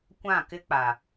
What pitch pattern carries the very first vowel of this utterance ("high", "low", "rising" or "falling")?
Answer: falling